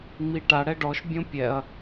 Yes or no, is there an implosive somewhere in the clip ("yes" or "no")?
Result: no